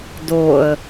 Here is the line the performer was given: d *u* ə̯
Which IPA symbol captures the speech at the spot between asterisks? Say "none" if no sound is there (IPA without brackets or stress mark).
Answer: o